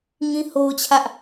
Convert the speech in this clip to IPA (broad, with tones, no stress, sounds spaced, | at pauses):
ŋ ĩ˦ h o˦ ʊ̯ t͡ɕʰ ä˦ ʔ